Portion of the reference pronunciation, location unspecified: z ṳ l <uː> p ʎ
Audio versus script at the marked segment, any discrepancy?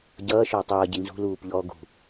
no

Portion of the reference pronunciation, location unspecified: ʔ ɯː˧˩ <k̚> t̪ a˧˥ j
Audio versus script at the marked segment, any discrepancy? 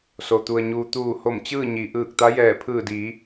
no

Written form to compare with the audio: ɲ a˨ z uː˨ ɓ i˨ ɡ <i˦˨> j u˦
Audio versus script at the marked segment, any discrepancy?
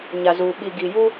yes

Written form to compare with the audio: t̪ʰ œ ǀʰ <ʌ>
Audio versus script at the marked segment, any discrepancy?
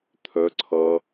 no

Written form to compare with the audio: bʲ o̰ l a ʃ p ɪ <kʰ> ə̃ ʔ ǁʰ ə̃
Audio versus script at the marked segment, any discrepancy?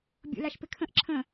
no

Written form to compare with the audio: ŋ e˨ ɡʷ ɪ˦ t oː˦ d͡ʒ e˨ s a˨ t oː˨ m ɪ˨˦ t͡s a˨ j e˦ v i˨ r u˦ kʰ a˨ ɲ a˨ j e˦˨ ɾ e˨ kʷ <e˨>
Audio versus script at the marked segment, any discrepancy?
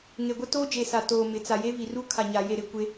yes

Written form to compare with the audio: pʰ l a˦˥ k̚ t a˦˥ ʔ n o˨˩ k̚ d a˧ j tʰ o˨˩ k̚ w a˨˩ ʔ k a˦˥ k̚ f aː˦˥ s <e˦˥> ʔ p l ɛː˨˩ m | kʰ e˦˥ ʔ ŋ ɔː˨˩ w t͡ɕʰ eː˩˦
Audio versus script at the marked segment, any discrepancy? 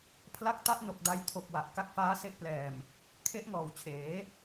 no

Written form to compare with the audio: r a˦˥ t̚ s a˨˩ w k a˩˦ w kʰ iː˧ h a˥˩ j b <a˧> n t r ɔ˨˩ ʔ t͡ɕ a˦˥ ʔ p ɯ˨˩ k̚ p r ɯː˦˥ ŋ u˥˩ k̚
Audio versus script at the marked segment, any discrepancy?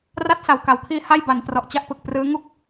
yes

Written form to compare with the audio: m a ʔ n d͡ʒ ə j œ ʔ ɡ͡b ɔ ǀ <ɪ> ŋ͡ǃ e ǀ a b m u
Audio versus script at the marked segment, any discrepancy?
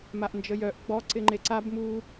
no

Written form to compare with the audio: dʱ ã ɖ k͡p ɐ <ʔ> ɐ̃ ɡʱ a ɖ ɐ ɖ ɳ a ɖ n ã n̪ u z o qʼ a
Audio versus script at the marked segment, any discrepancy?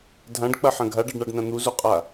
yes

